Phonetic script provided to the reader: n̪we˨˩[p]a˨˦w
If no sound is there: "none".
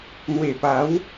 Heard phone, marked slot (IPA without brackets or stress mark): p